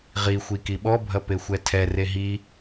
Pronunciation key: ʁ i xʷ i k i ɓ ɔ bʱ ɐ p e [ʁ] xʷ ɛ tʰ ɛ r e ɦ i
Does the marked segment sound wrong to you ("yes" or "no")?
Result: yes